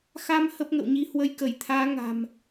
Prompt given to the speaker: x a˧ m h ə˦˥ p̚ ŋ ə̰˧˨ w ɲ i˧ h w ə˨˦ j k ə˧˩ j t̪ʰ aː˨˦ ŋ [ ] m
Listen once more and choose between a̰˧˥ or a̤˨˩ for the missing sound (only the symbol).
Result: a̤˨˩